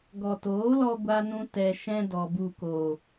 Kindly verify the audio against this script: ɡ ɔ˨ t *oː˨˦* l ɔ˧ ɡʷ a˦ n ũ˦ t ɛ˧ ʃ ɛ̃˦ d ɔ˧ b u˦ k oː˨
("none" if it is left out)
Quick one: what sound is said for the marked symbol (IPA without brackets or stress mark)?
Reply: oː˨˦